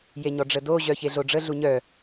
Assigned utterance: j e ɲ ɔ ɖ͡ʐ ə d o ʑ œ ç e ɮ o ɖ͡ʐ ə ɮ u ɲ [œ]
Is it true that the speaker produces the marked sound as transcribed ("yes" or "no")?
yes